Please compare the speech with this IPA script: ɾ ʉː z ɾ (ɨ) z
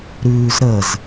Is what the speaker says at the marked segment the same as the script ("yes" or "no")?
no